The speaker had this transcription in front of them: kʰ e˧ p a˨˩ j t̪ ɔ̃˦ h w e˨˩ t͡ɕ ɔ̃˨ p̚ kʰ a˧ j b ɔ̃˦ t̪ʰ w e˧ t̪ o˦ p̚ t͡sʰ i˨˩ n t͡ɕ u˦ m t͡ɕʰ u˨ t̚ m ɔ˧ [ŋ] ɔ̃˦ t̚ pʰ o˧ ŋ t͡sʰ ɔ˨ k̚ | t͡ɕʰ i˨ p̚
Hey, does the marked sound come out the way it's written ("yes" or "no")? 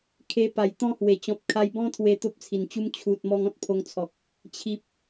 yes